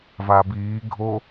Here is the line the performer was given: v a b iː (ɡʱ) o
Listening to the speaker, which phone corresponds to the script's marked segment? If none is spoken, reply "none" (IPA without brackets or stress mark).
ɡʱ